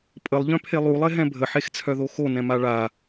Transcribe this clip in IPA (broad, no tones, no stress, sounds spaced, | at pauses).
pʼ ə lˠ ʎ œ̃ pʰ e lˠ u lˠ e ɦ ɛ̃ bʱ ə ħ e x t͡sʰ œ ð o x o n ɛ̃ m a ɭ a